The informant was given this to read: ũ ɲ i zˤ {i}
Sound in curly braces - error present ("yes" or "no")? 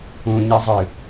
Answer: yes